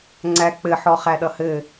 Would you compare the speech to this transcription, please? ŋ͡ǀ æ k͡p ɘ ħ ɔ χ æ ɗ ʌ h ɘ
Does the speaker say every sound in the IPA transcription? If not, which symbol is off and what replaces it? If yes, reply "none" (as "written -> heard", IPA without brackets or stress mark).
none